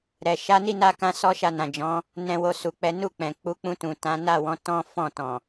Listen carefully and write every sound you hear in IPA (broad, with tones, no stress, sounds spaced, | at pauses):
ɾ ɛ˨ ʃ a˨˦ n i˦˨ n a˧ k ã˦ s ɔ˦ ʃ a˧ n ã˨ d͡ʒ ɔ̃˨˦ | n ɛ̃˨ w o˨ s u˨ k͡p ɛ˨˦ n u˦˨ k͡p ɛ̃˨ k͡p u˨˦ k͡p ũ˧ t ũ˨ t ã˨˦ n a˦˨ w ɔ̃˨˦ t ɔ̃˦ f ɔ̃˦˨ t ɔ̃˨